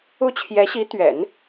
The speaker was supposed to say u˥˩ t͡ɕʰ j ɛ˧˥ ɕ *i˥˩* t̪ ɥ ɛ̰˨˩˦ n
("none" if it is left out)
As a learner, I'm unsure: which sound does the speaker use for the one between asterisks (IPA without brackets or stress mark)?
i˧˥